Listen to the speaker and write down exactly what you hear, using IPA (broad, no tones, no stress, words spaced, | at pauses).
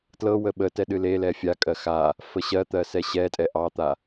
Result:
tlɤ wəɓətɛ ɗɨlelɛ fʲakʼɜ xa | fəɕɜt̪ɜ sɛɕɛtʼɛ ʔɑt̪a